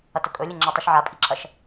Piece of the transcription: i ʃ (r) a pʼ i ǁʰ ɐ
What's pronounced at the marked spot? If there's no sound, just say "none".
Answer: ʕ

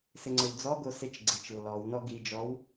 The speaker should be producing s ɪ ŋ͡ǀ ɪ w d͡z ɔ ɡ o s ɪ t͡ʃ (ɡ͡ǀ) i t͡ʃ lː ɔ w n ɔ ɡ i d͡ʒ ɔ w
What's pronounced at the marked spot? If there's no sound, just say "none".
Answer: ɡ͡ǀ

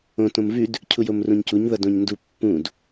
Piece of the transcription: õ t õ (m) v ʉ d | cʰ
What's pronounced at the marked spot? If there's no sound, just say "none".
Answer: m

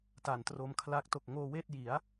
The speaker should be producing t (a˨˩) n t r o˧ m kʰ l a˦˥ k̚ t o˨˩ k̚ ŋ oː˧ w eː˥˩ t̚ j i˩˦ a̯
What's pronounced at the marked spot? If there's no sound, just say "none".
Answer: a˨˩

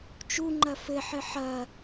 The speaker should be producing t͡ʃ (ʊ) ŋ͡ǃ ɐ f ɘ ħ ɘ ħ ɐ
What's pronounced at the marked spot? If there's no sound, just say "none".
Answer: u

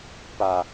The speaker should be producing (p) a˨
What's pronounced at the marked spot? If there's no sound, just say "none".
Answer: p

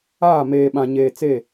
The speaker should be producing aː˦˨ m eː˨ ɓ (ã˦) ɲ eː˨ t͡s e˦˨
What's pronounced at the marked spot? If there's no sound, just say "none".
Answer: ã˨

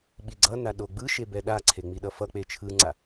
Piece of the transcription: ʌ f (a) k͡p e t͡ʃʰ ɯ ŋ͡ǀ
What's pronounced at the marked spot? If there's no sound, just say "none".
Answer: ʌ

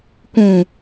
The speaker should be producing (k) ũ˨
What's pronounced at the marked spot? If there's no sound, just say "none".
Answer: k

